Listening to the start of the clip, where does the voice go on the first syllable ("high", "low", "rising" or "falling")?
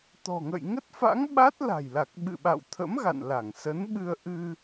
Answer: low